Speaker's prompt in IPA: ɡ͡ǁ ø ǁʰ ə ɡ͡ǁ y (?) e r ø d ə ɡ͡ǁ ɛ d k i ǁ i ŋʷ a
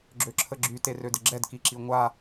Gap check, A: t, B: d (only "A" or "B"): A